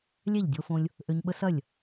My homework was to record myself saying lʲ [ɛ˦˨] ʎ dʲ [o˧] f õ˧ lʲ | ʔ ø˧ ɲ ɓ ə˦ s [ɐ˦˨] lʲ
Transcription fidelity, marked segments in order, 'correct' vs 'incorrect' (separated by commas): correct, correct, correct